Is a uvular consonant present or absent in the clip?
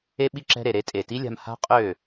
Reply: present